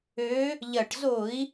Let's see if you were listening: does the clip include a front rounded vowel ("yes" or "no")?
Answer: yes